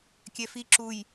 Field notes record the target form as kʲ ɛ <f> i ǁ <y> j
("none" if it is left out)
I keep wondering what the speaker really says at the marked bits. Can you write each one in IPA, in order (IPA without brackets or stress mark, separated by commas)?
f, u